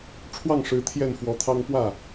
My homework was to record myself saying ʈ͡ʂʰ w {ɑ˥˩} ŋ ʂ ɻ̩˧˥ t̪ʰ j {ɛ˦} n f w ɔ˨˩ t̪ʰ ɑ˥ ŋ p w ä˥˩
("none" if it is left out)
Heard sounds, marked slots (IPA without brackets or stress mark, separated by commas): ɑ˥˩, ɛ˥˩